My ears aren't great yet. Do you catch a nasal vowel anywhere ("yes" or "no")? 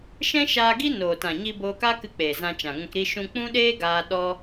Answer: yes